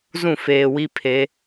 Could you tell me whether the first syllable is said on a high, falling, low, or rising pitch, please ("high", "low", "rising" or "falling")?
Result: falling